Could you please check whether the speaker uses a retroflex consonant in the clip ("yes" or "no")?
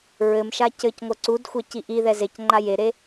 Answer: no